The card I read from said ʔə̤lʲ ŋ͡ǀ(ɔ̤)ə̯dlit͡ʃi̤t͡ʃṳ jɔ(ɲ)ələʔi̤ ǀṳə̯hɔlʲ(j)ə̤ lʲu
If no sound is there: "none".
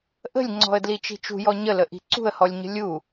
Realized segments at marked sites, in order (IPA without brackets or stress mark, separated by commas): ɔ̤, ɲ, ɲ